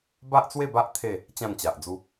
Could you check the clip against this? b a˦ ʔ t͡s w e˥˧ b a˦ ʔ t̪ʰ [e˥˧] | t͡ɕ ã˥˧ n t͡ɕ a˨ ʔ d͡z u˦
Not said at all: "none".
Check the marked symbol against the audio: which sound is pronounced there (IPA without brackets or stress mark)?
e˥˧